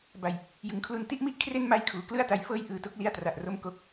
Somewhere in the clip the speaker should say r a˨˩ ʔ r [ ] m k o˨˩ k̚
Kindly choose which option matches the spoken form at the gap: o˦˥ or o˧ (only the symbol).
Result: o˦˥